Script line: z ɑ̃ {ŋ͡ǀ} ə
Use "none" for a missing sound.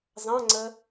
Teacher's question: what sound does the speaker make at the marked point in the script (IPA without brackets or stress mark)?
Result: ŋ͡ǀ